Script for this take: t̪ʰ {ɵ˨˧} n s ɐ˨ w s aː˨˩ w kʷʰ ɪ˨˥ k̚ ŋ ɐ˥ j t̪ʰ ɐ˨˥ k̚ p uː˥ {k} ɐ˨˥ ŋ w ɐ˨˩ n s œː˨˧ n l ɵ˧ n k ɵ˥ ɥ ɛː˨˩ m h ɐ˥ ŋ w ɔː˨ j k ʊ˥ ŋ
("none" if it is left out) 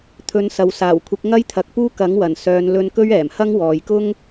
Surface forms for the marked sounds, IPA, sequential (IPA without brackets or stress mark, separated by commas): ɵ˨˧, k